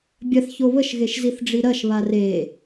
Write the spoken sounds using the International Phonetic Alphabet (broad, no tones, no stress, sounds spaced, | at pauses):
bʲ ɐ θ ç o β ə ʃ ɣ e ʃ z i θ ɖ͡ʐ i ɾ ɐ ʃ β a r e